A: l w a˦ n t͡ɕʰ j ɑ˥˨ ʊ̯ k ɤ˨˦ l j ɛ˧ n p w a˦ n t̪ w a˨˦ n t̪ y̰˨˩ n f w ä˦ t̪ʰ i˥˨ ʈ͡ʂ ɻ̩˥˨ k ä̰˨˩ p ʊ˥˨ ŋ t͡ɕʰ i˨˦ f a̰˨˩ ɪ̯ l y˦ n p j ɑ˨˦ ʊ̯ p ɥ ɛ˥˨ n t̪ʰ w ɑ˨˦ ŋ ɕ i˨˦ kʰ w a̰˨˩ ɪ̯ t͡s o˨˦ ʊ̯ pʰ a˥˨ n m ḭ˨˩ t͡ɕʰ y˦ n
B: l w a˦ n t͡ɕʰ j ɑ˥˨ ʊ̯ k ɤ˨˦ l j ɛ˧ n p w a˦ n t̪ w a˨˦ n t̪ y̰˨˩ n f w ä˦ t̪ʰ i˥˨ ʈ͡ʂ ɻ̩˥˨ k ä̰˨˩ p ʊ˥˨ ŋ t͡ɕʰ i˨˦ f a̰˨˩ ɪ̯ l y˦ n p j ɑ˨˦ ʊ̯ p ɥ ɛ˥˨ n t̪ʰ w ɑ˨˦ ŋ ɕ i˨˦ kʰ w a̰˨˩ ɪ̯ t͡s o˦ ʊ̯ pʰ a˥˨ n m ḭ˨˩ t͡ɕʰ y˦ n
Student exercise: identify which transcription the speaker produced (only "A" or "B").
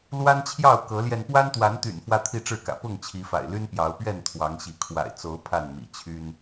A